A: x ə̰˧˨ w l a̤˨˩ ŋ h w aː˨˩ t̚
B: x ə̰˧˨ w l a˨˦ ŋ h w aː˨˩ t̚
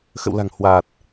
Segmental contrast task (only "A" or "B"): A